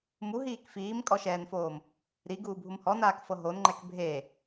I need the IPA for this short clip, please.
m u ɦ iː k f iː m kʼ ɔ ʃ ɛː n f oː m | ɾ i ɡ uː bʱ u m h ɔ n aː k f ɤ ɦ o n ŋ͡ǃ ɛ k bʱ e

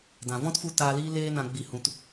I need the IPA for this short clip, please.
d ã˨ v ɔ̃˦ t f u˧ t aː˧ l iː˦ l eː˦ n ã˧ ɡ͡b i˧ h ũ˧ t

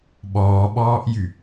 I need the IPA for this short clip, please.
ɓ ɔː ɓ ɔː ʔ j y

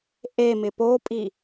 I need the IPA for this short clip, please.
ʔ e m ɪ p o pʼ i

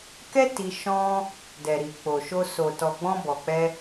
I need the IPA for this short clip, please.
k ɛ˦ t i˧ ʃ ɔ̃˦ | d ɛ˨ ɾ i˨ k͡p o˨ ʃ o˧ s o˨ t ɔ˨ ɡ͡b ɔ̃˧ b ɔ˨ k͡p ɛ˧

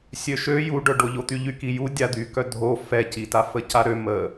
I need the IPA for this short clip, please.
sʲ ø ʃ ø j u ɖ œ ɖ o ʎ o t̪ y ʎ y k i j u dʲ a d̪ y k œ dʱ o f ɛ c i t a f ə c a ɾ ø m ə

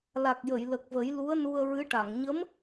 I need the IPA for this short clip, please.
l a˨˩ k̚ j ə˨˩˨ j l ə˨˩ k̚ v ə˨˩˦ j l u˧˥ ə̯ n u˧ ə̯ ɹ ɨ˧˥ ʈ a˨˩˨ ŋ ɲ ə˧˥ m

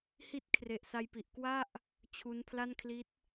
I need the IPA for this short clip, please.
h i˦˥ t̚ kʰ r e˨˩ ʔ s a˧ j p i˨˩ ʔ k w a˥˩ ʔ | t͡ɕʰ u˦˥ n pʰ l a˥˩ n kʰ l i˦˥ t̚

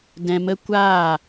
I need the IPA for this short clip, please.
d ɛ̃˧ m ə˦ kʷ aː˦˨

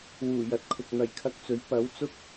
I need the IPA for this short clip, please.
w uː˨˩ j ɐ˨˥ t̚ kʰ ʊ˨ k̚ n̪ ɐ˨˩ j kʰ ɐ˧ k̚ t͡s ɵ˨˥ ɥ p ɐ˨˥ w t͡s ʊ˥ k̚

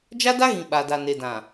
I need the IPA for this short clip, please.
d͡ʒ a˦ d a˦ ɣ ĩ˨ ɓ a˨ d a˨ n e˨ d ã˨

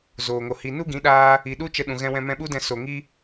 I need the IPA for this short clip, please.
z oː˨ ŋ o˨ h i˨ n u˦ ɡ ĩ˨˦ ɗ aː˧ | i˨ ɗ u˦ t͡ʃ ə˧ ɗ ũ˨ ɣ ɛ̃˧ w ɛ̃˧ m ɛ̃˧ ɓ u˦ d ɛ̃˧ s o˨ ŋ i˦

